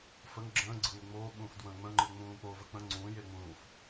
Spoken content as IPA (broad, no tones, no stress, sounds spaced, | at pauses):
f ə ŋ ɡ͡ǁ ə̃ː ɡ͡ǀ ɯ ŋʷ ɯ ŋ͡m oː ɓ ũː f d w ə̃ː ŋ͡m ə̃ ŋ͡ǃ ɯ ŋ͡m ũː k͡p o v ə k͡p ə̃ ŋ͡ǀ ũː j e ŋ͡m ũː f